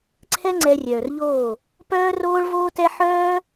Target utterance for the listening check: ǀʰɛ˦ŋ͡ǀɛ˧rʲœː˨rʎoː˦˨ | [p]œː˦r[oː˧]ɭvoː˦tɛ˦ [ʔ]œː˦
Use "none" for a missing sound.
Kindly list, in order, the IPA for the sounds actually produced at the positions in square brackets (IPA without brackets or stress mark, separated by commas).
p, oː˦, ħ